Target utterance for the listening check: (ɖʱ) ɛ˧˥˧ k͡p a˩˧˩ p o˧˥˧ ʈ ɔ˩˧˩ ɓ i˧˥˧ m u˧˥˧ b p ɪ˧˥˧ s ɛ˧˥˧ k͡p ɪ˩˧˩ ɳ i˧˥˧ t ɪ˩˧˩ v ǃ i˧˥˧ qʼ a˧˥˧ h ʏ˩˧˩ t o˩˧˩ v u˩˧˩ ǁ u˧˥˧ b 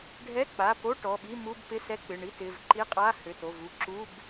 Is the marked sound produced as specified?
yes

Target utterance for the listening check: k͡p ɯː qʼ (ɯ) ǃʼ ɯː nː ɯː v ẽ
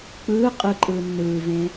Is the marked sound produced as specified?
yes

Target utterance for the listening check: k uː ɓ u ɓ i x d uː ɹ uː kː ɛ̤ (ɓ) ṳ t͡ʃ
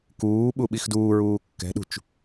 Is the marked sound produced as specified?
no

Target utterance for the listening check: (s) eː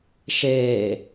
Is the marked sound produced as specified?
no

